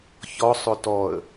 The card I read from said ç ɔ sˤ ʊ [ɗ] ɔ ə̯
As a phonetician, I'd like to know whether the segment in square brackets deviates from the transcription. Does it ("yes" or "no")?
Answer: yes